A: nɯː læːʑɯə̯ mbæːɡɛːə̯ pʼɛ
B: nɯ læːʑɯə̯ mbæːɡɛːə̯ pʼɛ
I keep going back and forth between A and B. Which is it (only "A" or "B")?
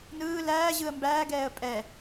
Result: A